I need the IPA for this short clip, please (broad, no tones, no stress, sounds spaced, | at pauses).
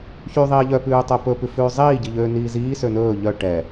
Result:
ç y ðˤ iː ʎ œ p ʉː tˤ œ p ɵ p ʉ f ʉː zˤ iː ɟ i ʎ øː n iː z iː s ø n ɵː ʎ œ ʈ ɛ